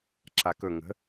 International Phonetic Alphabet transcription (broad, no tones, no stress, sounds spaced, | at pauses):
ǁ a k ɵ ŋ ə̤